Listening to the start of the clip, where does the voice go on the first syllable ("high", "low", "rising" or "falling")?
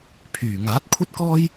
low